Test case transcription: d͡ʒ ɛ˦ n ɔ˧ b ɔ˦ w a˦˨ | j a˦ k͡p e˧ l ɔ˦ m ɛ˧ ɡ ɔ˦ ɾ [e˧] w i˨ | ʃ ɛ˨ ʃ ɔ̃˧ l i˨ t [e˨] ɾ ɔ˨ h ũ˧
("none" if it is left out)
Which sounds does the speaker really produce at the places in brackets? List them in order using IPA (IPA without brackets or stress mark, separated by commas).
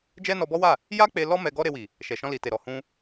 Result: e˧, e˨